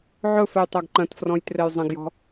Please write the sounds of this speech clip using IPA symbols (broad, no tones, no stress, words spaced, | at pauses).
ʕɵfɛj tˤaɡǃɐ̃tfrɔ̃j trɛjzˤɐ̃ɡjɔ̤